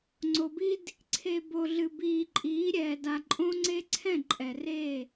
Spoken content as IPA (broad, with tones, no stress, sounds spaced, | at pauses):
ŋ͡ǀ o˨ b i˦ d | ǀʰ e˨ b o˨ ɮ ɨ˨ b iː˨ ǃʼ iː˨˦ ɾʲ ɛː˨ d a˨ ǃʼ õ˦ ŋ͡ǀ e˦ ǀʰ ɛ̃˦˨ ǃʼ ɛ˨ r e˦˨